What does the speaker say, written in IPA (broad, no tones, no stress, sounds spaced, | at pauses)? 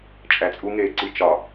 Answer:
t͡ʃʼ æ t͡sʼ u ŋ eː ǀ i t͡ʃ ɒ